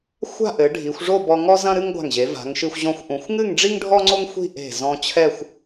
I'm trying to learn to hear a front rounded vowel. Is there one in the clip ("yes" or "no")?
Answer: no